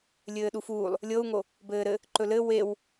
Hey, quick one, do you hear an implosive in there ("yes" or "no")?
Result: yes